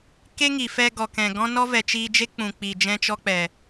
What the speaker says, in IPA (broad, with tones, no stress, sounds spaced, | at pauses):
k e˦ ŋ i˨ f ɛ˧ ɡ ɔ˨ k ɛ̃˨ ɡ ɔ̃˦ n ɔ˦ v ɛ˨ t͡ʃ iː˧ d͡ʒ e˦ k͡p ũ˨ k͡p i˨ d͡ʒ ɛ̃˦ t͡ʃ ɔ˦ k͡p ɛ˨